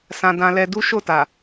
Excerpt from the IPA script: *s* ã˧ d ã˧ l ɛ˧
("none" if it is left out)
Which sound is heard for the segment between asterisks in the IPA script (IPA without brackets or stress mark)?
s